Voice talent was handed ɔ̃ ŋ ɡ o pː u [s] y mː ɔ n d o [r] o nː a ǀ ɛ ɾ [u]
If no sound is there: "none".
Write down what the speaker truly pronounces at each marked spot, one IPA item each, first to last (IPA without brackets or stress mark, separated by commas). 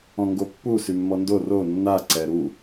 s, r, u